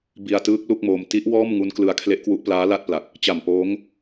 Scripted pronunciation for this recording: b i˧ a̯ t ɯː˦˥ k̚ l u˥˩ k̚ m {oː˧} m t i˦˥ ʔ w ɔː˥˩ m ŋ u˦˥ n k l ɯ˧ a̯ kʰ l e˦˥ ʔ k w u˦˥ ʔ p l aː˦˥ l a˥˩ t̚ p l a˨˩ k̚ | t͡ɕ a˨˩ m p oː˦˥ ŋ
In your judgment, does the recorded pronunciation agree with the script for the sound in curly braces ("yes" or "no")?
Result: yes